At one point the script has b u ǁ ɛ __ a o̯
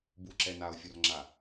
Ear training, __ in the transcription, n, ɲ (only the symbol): n